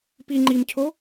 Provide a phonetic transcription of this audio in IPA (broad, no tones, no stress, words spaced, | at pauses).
pi ŋ͡ǃimcʰo